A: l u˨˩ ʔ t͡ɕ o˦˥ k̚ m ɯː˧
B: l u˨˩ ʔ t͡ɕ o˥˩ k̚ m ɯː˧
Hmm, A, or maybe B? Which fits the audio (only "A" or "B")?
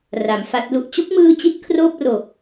B